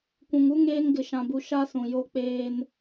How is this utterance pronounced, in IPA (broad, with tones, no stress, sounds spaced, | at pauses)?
kʷ ũ˨ ŋ u˦ ŋ eː˦ ŋ ɡ ɪ˦ ʃ ã˦ b u˦ ʃ a˦ s ũ˨ j o˦ k͡p eː˦ n